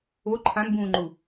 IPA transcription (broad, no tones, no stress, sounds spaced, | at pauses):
o ǃʰ ã n b ũː ŋ͡ǃ u